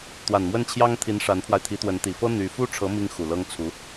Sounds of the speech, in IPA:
t̪ w a˨˩ n m w ə˥˩ n t͡ɕʰ j ɑ˥ ŋ t̪ʰ i˧˥ n ʂ a˧˥ n pʰ w a˧ ɪ̯ t̪ʰ i˧˥ t̪ w ə˧˥ n t̪ i˨˩ f ɤ˥ n̪ y˧˥ f u˥ ʈ͡ʂʰ ɤ˧˥ m i˥ ŋ x u˨˩ l ɤ˥ ŋ t͡sʰ u˧˥

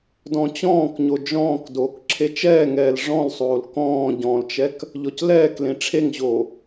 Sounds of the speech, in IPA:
d ɔ̃ t͡ɕ ɔ̃ː k ɲ o d͡ʒ ɔ̃ː k d oː k ǁʰ e t͡ʃ ɛː ŋ ɛː l ʐ ɔ̃ l sˤ oː l k ɔ̃ː ɟ ɔ̃ l t͡ʃ ɛ k | ʎ ɔ c l ɛː k l ẽ ʈ͡ʂʰ e ŋ ʑ oː

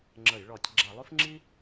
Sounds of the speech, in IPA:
ŋ͡ǁ ə˧˩˧ j ɭ ɔ˧˩˧ tʲ ɡ͡ǁ a˧˩˧ lˠ ʉ˥ f ŋ͡ǁ i˥

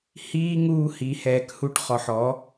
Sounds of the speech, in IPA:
h iː˦ ŋ uː˦ h i˨˦ h ɛː˨ k h u˧ ʈ χ ɔ˨ ħ ɔ˨˦

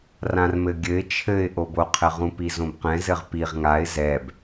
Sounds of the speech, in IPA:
r ã r m ɘ ɡʲ ɘ ɪ̯ t͡ʃʰ ɘ ɪ̯ ʔ o b o qʰ ɘ ʁ ũ p i z õ b q ɛ̃ z ɘ ʁ p i ʁ ŋ a ɪ̯ z ɛ b

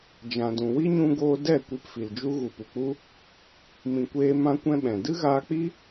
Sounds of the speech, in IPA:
d͡ʒ ã˨ d ũ˨ w i˦ ɲ ũ˧ ɡ oː˧ d ɛ˦˨ kʷ i˧ p f i˨ l d͡ʒ u˦ ɣ u˨ p u˨ k͡p u˦ | m ĩ˧ kʷ eː˦ m ã˦ kʷ ɛ̃˦ ɓ ɛ̃˨ d ɨ˦ ɣ aː˧ k͡p i˦

